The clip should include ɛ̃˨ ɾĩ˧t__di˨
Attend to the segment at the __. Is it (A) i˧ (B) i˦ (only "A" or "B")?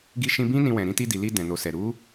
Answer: A